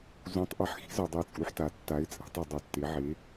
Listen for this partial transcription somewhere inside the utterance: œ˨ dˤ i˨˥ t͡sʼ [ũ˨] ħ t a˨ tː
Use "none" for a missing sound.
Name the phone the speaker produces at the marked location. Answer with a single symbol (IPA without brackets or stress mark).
u˨